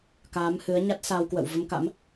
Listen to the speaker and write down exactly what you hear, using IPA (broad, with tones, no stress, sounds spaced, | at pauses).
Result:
k aː˨˦ m h ɨ˨˦ ə̯ ɲ a˦˥ t̚ s a˧ w k w ə̰˧˨ w v ə˧ m k a̰˧˥ m